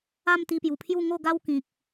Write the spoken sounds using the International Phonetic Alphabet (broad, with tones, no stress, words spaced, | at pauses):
a˥˧mt̪i˧pju˨˩pʰju˥˧ ŋo˥˧ɡa˦w kĩ˨k̚